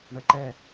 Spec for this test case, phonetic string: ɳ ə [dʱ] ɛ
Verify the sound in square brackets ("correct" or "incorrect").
incorrect